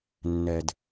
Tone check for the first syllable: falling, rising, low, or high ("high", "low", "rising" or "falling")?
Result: low